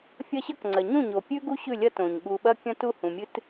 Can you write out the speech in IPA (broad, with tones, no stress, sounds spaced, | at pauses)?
fʲ ɐ˦ ɕ ɐ˦ k ŋ͡ǀ ɐ˨ ɲ ũ˦˨ ɲ o˨ pʲ ʉ˦ ɡ u˦ ɕ ʉ˦˨ lʲ ɐ˦ t õ˨ ɲ ɠ u˨ ɓ ɐ˦ kʲ ɐ̃˦ t u˦˨ h ũ˨ mʲ ɨ˦ t